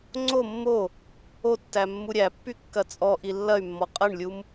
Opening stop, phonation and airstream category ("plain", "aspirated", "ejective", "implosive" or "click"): click